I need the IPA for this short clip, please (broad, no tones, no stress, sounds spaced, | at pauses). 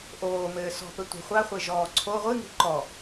ʔ oː m ɘː s ɔ̤ p ɘ tʷ i̤ χʷ a χʷ e ʒ ɔː ǀʰ o ʁʷ ɨ ŋ i̤ ǃ ɔ